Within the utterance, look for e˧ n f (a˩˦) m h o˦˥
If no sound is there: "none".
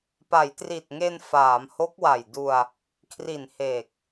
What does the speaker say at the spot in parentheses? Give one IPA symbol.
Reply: aː˩˦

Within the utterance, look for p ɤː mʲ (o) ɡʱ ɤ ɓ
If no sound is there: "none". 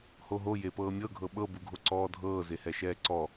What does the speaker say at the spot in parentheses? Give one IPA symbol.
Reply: ɤ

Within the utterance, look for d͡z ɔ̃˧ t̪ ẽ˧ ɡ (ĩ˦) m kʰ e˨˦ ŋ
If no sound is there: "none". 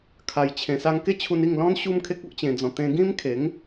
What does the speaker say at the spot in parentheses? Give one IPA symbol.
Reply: ĩ˦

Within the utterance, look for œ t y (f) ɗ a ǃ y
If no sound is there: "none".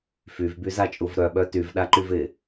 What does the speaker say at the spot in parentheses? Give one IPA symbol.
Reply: v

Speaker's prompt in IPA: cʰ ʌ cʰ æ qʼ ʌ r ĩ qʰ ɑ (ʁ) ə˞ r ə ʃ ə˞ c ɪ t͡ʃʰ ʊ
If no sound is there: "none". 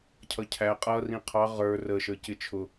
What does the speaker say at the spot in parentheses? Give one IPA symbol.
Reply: ʁ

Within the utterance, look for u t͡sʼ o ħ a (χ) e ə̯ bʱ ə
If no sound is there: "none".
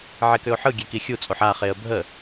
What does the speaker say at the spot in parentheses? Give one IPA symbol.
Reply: χ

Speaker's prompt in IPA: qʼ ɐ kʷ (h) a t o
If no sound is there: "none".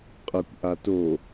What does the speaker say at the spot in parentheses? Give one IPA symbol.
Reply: ʔ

